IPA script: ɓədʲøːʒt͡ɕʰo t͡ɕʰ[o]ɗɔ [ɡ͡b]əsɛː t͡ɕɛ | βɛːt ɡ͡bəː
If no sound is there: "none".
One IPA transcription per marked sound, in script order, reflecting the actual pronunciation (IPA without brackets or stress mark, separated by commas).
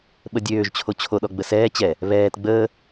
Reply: o, ɡ͡b